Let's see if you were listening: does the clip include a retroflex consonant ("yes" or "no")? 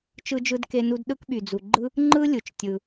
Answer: no